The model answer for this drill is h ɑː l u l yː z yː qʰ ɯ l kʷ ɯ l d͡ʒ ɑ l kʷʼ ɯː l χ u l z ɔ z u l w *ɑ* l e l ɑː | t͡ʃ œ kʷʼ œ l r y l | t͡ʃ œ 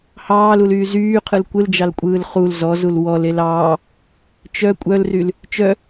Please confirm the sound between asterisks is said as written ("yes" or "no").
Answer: no